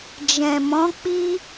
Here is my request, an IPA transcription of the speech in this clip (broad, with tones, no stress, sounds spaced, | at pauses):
d͡ʒ ɛ̃˨ m ɔ̃˨˦ k͡p i˦